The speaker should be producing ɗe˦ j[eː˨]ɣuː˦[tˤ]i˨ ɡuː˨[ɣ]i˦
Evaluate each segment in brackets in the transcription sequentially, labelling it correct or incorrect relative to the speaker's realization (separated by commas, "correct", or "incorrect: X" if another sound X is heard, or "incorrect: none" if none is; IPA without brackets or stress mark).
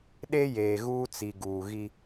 correct, incorrect: t͡s, correct